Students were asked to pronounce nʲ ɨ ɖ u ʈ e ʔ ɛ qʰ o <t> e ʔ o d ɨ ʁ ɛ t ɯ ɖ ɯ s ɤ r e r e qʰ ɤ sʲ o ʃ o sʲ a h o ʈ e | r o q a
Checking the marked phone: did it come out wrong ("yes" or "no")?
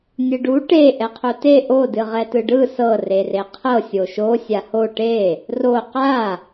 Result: no